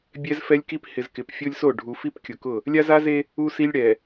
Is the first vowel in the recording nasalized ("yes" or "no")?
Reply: no